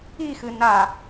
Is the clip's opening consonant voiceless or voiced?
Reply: voiceless